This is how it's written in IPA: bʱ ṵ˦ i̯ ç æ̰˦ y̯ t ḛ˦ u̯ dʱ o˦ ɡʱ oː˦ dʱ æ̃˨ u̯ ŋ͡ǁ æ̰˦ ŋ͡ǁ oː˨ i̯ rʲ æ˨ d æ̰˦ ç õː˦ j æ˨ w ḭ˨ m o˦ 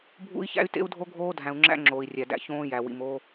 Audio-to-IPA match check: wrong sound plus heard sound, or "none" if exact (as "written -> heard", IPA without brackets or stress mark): none